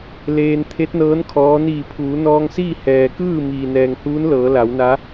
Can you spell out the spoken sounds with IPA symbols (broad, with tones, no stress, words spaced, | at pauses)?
leː˧n t̪ʰe˧˥t̚nɤː˧˥n kʰɔː˧˥ niː˧˩pʰuː˩˧nɔː˧ŋsiː˥˨ hɛː˩kɯː˥˨ miː˩nɛː˩ŋhuː˧˥nlɤː˩˧ la˩˧wna˧˥